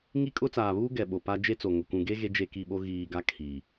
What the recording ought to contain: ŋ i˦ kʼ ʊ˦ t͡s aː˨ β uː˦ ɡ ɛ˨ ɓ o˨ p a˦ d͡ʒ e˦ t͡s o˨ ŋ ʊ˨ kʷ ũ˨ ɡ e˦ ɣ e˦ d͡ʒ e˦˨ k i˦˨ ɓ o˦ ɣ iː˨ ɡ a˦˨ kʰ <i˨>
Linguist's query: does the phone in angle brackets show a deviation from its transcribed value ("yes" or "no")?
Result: no